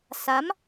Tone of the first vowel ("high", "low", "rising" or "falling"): rising